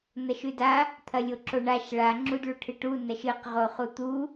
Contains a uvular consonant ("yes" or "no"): yes